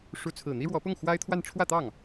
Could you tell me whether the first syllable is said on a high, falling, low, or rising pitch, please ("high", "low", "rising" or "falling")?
rising